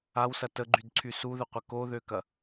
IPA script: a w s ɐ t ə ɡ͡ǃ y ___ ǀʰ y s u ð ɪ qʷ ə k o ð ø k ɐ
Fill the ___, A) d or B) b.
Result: A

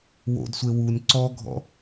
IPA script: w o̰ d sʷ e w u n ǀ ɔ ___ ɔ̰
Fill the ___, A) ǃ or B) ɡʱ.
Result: B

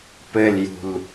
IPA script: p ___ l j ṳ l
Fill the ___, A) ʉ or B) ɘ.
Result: B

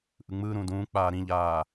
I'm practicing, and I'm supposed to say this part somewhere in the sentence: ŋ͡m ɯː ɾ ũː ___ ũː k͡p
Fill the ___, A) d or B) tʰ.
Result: A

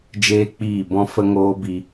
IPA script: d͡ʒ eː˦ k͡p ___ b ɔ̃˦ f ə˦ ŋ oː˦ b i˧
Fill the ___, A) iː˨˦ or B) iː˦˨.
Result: B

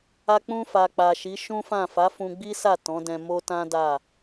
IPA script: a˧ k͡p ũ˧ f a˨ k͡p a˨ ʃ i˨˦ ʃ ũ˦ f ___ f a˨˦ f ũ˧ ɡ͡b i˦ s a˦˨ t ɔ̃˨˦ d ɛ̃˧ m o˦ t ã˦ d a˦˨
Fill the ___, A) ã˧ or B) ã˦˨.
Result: B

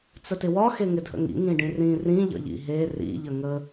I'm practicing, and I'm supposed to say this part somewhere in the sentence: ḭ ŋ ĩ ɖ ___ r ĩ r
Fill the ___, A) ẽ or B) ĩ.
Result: B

